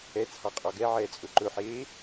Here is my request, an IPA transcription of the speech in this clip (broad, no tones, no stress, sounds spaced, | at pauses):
ɛ t͡sʰ ɑ qʼ ɔ ɡ ɛ ʕ ɛː t͡sʼ ɵ ǃ ɵ ħ eː